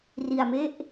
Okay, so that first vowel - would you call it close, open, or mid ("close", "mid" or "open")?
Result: close